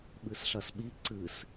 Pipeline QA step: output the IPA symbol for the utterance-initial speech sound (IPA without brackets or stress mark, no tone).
ɓ